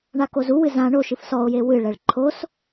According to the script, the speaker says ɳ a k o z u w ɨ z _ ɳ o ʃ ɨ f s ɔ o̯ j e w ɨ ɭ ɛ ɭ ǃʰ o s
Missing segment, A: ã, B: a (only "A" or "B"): A